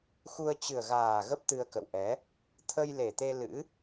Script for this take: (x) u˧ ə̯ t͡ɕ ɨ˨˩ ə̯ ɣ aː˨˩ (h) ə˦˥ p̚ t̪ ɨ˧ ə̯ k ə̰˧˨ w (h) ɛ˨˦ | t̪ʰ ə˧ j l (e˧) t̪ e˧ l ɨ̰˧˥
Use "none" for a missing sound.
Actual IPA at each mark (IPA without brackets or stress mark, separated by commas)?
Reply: x, ɣ, ʔ, e˨˩